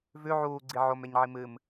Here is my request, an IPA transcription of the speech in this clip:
v ʉ ʕ uː ɡ͡ǀ i ʕ o m e ɲ ʕ i m ɨ m

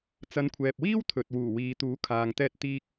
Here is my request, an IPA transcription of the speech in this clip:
t͡s ɐ˨˧ n kʷʰ ɛː˨ p̚ w iː˥ w t̪ʰ ɵ˨ t̚ w uː˨˩ w iː˨ t̪ uː˨˥ kʰ aː˨ ŋ t̪ ɛː˧ t̚ t̪ iː˥ k̚

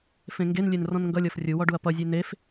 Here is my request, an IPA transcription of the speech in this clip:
f ẽ ŋ ɡ e n lʲ e n r ɔ̃ n ŋ ɡ ʌ lʲ ɔ f rʲ u w ɔ ɖ u ɐ̯ p ʌ zʲ e n e f

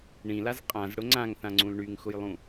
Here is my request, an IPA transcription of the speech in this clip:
ɳ ĩ l a z qʼ ã z ɽ ʊ ŋ͡ǀ ã ŋ θ ã ŋ͡ǀ ũ l ɳ y ŋ x ʊ j lˠ ũ

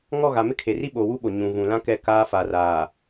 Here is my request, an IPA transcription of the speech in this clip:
ŋ ɔ˦˨ ɣ a˨ m ɪ˦ kʰ e˨ r i˦ ɓ oː˨ w u˦ ɓ o˨ ɲ ũ˨ v ũ˨ l ã˦ k ɛ˦˨ k aː˦ f a˨ r aː˨

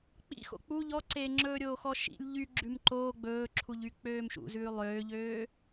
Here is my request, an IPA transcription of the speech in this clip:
k͡p ḭ x o̰ k͡p u ʎ ɔ ǀ eː ŋ͡ǁ ɵː ɾʲ oː x ɔ ʃ ḭ lʲ ʎ y ɡ͡ǁ ʉ m ǃ oː ɡ͡b ɵː ǁʰ u ʎ y k͡p øː m ʃ ṵ z ʉː lˠ øː ʎ øː

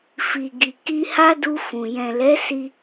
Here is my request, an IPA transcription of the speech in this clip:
f i˨ ɡ i˨ k i˧ h a˦ d u˧ f ũ˨ j ɛ̃˨ l ɛ˨˦ s i˧

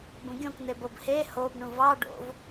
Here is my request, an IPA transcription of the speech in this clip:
b ũ ɡʲ õ k n̪ e b o b h e h o b ɳ ũ v ɑ ɖ o̰ v

